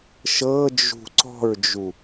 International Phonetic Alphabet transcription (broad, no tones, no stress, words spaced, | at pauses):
ʃɤd͡ʒṳ ǀɔ̤ɹd͡ʒu